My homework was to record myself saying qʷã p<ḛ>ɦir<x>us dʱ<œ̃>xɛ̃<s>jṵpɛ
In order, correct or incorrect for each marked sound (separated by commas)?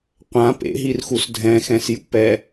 correct, correct, incorrect, correct